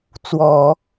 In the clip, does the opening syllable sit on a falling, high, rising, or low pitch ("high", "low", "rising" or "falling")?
low